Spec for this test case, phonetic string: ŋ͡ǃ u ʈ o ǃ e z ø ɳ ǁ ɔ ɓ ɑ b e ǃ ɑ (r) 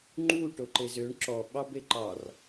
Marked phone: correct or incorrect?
correct